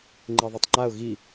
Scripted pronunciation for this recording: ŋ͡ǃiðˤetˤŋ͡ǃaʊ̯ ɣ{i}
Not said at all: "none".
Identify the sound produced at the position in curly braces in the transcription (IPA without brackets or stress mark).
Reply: i